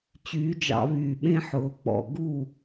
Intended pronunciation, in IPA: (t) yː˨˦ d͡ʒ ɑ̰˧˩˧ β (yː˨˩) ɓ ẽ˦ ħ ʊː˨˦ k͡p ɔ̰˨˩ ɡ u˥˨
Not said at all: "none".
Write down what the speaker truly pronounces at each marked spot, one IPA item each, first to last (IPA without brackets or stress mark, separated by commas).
t͡ɕ, yː˨˩